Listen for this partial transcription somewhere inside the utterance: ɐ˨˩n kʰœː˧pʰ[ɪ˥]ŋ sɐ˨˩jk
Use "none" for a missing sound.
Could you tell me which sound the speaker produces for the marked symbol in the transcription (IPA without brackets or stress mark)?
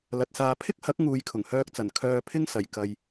ɪ˥